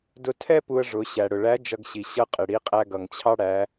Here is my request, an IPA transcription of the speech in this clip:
d ʊ˧ tʰ ɛ˥ p u˧ ə̯ ʐ ʊ˩˧ ɕ æ˩ ɽ ʊ˩ ɭ æ˧˥ d͡ʒ ʌ˧ ɡ ɕ i˩ ɕ ʌ˧˥ qʼ ɪ˩ ɽ i˧˥ qʼ æ˥ ɡ ʌ˩ ŋ t͡ɕʰ ɑ˥ ɽ æ˩˧

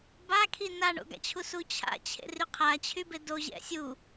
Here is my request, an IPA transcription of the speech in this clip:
b a kʰ i n a ɳ o̰ ɡ a̰ t͡ɕʰ u s u t͡ɕʰ a̰ t͡ɕʰ ḛ r y qʰ a t͡ɕʰ y b e d o ʑ ɛ̰ sʲ u

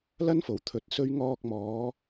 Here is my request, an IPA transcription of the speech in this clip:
l ɐ˥ n f o˨˩ w t̪ʰ ɵ˧ t̚ s ɵ˥ ɥ ŋ ɔː˧ k̚ m ɔː˨˧

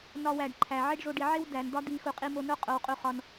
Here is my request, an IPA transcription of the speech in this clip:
n ɒ˧ w æ˨ ɖ ǃʰ æ˨ ʕ e˦ ɖ ʐ o˧ ɖ i˨ ʕ e˦ w d æ˨ n d̪ ɒ˦ d̪ i˧ x u˧ qʼ i˧ m o˧ n o˦ qʼ o˧ w qʼ u˧ χ ɒ˧ n

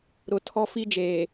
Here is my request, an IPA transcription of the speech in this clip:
ɾ ʊ˨ tʰ ɔ˦ f i˦ d͡ʒ eː˨

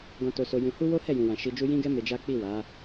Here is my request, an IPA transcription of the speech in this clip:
ɡ ɔ̃˧ t o˧ s o˧ j ũ˧ h u˦ w o˦ h ɛ˦˨ j ũ˨ w ã˨ ʃ i˧ d͡ʒ u˦ j ĩ˦ ɡ ɛ˦ m e˧ d͡ʒ a˦ k͡p i˦˨ w a˨˦

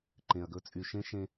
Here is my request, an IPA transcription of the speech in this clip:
ǃ ẽ˩ ɐ̯ ɡ ɵ˦ t͡sʼ y˨ ʃ ẽ˥ ʃ ẽ˦

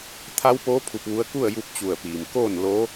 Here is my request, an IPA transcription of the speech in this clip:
t̪ʰ a˧˥ w p oː˧˥ pʰ u˧ p̚ ʋ u˧˥ ə̯ k u˥˨ ə̯ j u˧ p̚ t͡ɕ u˧˩ ə̯ p iː˩ m k oː˥˨ n l o˧˥

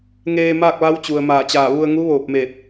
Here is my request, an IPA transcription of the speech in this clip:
ŋ eː˧ m aː˥˨ k̚ ʋ a˧˥ w t͡ɕ u˩ ə̯ m aː˧˩ t͡ɕ aː˧˩ ʋ u˧ ə̯ ŋ u˧˥ ʋ oː˧˩ p̚ m eː˧˩ t̚

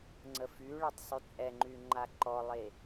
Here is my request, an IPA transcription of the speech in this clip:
ŋ͡ǀ ə f y ɭ e tˤ sˤ y t͡sʼ ɛ ŋ͡ǃ y ŋ͡ǃ a ǃ ɔ lˠ e

